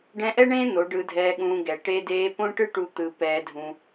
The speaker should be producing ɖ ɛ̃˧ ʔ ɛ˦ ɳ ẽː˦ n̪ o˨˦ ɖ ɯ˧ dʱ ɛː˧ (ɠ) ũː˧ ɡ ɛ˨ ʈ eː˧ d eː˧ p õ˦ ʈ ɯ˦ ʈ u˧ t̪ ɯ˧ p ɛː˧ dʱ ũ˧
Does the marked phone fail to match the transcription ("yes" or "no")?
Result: no